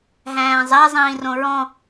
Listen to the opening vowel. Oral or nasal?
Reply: nasal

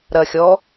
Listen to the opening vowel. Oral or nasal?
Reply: oral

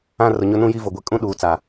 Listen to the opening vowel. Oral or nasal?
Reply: nasal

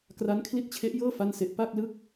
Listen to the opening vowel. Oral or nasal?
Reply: oral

